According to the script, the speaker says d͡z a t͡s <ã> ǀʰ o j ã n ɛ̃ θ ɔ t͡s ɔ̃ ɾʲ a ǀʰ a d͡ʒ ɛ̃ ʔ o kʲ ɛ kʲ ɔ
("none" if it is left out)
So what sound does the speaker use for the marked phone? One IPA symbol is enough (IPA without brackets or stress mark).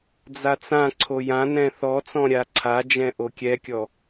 ã